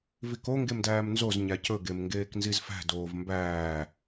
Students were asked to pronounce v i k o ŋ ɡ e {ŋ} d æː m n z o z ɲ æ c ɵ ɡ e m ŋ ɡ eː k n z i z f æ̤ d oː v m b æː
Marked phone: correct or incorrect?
incorrect